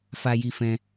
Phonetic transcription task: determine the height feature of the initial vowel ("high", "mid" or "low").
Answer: low